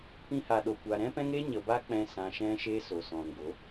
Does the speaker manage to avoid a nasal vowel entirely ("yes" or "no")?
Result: no